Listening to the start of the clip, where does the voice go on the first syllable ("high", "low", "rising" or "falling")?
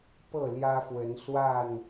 falling